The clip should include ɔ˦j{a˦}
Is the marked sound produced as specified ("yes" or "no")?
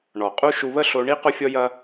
no